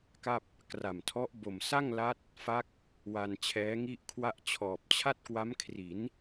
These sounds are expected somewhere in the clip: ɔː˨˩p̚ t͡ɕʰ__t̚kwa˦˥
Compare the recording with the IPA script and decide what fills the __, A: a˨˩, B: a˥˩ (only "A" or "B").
B